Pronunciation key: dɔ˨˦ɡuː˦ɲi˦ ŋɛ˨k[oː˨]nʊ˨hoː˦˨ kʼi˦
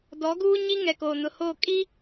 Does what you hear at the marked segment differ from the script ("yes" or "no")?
no